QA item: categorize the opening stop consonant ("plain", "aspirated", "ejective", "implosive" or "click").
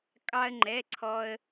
ejective